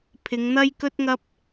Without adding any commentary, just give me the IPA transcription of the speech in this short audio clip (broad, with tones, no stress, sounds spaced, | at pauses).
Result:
pʰ ɪ˨˧ ŋ n̪ ɐ˥ j k ɵ˥ t̚ ŋ ɐ˥ p̚